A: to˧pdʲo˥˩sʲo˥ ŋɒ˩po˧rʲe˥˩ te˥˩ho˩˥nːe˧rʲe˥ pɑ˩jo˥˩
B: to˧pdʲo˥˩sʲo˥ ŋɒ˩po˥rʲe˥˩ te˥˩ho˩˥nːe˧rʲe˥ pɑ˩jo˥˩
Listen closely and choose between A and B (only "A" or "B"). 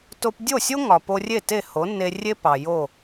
A